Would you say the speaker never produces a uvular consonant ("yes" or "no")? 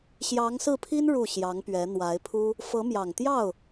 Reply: yes